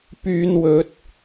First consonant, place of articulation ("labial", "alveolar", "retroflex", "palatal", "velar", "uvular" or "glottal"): labial